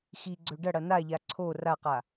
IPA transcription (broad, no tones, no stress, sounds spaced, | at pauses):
x i ɡ͡ǀ ɵ ɖ ɐ ɽ ɐ n a ʎ a ǀʰ o r a q a